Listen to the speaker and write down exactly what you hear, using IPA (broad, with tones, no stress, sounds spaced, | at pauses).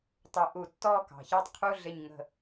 tˤ ʊ˧˩˧ ʔ u˧˩˧ tː ɔ˥˧ k ɑ̤˩ ç ɑ˥˧ tˤ qʰ u˧˥˧ ɮ ɪ˧˩ ɲ ŋ ə̤˧˩